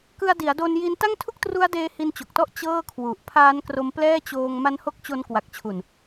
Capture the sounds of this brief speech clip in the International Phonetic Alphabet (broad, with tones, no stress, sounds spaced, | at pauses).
k ɯ˧ a̯ d i˩˦ a̯ d o˧ n j i˦˥ n t a˥˩ ŋ tʰ u˥˩ k̚ t r u˦˥ a̯ d eː˦˥ h i˧ n t͡ɕ o˨˩ k̚ t ɔ˥˩ ʔ t͡ɕ ɤː˥˩ kʰ w u˨˩ ʔ pʰ aː˦˥ n k r o˧ m p l ɛː˥˩ t͡ɕ oː˧ ŋ m a˦˥ n h o˦˥ k̚ t͡ɕ o˦˥ n k w a˨˩ k̚ t͡ɕʰ u˨˩ n